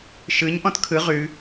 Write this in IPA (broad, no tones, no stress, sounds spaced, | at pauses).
ʃ ɯ ɲ ʔ ɔ̃ t kʰ ɯ ʁ ʉ